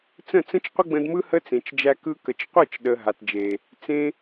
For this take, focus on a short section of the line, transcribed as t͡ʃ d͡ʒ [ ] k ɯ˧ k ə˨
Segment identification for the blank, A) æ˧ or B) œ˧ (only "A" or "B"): A